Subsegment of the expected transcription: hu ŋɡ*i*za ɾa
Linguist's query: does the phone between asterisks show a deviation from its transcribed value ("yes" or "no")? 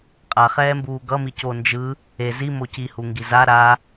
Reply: no